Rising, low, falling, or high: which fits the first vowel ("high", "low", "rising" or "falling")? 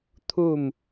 falling